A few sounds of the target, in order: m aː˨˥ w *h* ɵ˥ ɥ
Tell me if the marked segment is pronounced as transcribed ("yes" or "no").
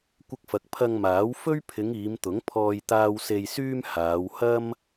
no